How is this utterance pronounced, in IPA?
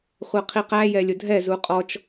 χʷ ɜ qʰ i q æ j ɛ lʲ ʊ dʱ ɛ z u qʼ ɔ t͡ʃ

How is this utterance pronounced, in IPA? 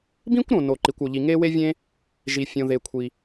b ĩ˥ kʷ ɾ õ˩ n o˩ ǃ i˩ kʷ o˩ ʎ i˩ ŋ e˥ w e˥ vʲ ẽ˥ | ʒ i˩ fʲ õ˩ ð e˩ kʷʰ i˩

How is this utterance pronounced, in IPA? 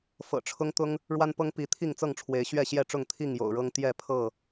f ɤ̰˨˩ ʈ͡ʂʰ ʊ˦ ŋ t̪ ʊ˦ ŋ | ɻ w a˦ n p ɤ˦ ŋ p i˨˦ t̪ʰ i˥˨ ŋ t͡s ɤ˥˨ ŋ ʈ͡ʂʰ w e˨˦ ɪ̯ ɕ ɥ ɛ˥˨ ɕ j ɛ˥˨ ʈ͡ʂ ʊ˥˨ ŋ t̪ʰ i˥˨ ŋ j o̰˨˩ ʊ̯ ɻ ɤ˦ ŋ t̪ j ɛ˥˨ pʰ ɤ˥˨

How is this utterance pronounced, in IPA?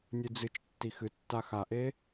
nʲ ɨ d͡z ɨ t͡ʃ tː i x ɨ tː a x a ʔ e

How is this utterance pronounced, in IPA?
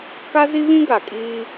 k a˦ z i˦ β ĩ˦ ɡ a˨ kʼ iː˦

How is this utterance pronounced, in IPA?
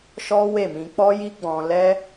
ʃ ɔ˦ w e˦˨ m ĩ˧ k͡p ɔ˦ j i˦ ɡ͡b ɔ̃˧ l ɛ˦

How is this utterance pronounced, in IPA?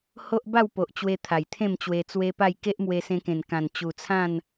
h o˦ ʔ b a˥˧ w p o˨ ʔ t͡ɕ w e˧ t̪ʰ a˨˩ j t̪ʰ ẽ˥˧ m t͡ɕ w e˧ t͡s w e˦ p a˥˧ j k e˦ ʔ m w e˧ s ẽ˧ k ẽ˨˩ n k ã˨˩ n t͡ɕ u˨˩ t͡sʰ ã˥˧ n

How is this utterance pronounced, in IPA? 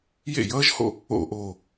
j ḛ˥˩ j ʌː˦˥ ʒ h o̰˥˩ | o̰˧˩˧ ʔ oː˨˩

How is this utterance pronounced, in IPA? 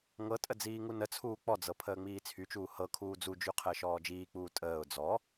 ŋ ɤ tʼ ə d͡z iː ŋ u n ə t͡sʰ uː k͡p ɔ d͡z ɤ pʰ əː ŋ͡m iː t͡sʰ y t͡ʃ uː h ɤ kʰ uː d͡z u d͡ʒ y qʰ əː ʃ ɔː d͡ʒ iː k͡p uː tʼ əː ʊ̯ d͡z ɔ

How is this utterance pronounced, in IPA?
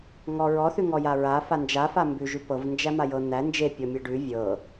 ŋ ɔ ɹ ɔ θ ʉ ŋ ɔ j a ɹ a f a n d͡ʒ a f a m b ʉ ʒ ʉ p ɤ v n d͡ʒ æ m a j ɤ n̪ æ n d͡ʒ e pʲ ɔ mʲ ɤ ɖ ʉ vʲ ɤ

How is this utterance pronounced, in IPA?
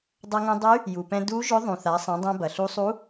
dˤ ɐ˧ ŋ ə̃˧ dˤ y˧˥ | j u˩ p ɛ̃˧ d u˧˥ ʒ ʏ˧˥ ðˤ ũ˩ θ a˩˧ sˤ ĩ˩˧ dˤ ɛ̃˧ b ɐ˩ ɬ u˧ sˤ u˧˥

